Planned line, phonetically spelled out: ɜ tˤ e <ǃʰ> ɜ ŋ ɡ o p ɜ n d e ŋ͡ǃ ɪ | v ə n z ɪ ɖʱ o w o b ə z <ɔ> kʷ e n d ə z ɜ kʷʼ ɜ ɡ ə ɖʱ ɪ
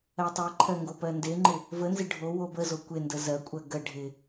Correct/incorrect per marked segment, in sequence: correct, incorrect: o

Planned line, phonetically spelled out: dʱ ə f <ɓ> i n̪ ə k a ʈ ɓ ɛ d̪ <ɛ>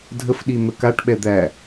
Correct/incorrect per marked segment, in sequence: incorrect: ɗ, incorrect: æ

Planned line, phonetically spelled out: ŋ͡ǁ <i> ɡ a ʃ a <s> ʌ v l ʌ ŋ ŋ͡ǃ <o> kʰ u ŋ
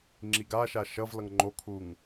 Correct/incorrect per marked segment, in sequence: correct, incorrect: ʃ, correct

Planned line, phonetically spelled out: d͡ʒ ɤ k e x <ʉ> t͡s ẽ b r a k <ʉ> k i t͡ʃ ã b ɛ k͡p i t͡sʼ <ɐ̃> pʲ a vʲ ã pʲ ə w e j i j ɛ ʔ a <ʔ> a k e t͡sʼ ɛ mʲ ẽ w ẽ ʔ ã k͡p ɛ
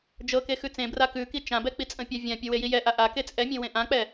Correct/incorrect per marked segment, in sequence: correct, correct, incorrect: ə̃, correct

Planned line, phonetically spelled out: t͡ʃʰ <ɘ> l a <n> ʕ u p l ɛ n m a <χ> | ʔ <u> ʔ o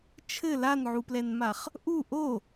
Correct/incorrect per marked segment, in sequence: correct, correct, correct, correct

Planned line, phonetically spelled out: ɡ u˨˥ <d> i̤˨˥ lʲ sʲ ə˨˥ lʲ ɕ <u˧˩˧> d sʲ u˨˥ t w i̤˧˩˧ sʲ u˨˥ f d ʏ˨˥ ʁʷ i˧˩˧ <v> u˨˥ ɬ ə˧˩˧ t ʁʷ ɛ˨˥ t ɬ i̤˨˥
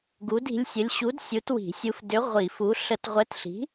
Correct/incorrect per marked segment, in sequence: correct, incorrect: u˨˥, incorrect: f

